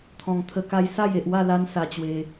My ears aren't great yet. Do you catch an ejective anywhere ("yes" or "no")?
no